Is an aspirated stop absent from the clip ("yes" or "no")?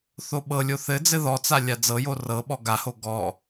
yes